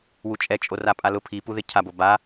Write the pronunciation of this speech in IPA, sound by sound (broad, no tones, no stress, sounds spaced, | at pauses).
w u t͡ʃʼ ɛ t͡ʃʼ o r a pʼ a l ʊ pʰ i p u ð ɪ cʰ a b o b a